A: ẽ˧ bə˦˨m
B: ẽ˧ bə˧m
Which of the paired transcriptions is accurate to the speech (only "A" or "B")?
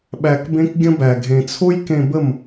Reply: A